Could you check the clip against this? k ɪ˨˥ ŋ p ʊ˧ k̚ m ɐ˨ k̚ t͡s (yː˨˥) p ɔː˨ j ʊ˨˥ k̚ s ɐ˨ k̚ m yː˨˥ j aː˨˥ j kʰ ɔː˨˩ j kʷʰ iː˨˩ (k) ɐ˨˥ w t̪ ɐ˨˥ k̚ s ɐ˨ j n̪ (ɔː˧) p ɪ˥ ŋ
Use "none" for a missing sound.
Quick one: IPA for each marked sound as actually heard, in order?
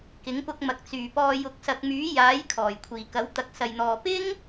yː˨˩, k, ɔː˨

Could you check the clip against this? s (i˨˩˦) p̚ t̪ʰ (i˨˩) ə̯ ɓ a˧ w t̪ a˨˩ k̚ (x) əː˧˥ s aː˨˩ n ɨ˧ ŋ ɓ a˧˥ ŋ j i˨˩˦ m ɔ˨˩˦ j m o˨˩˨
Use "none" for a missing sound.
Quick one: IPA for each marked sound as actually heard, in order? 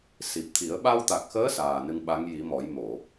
i˨˩, i˨˩˦, x

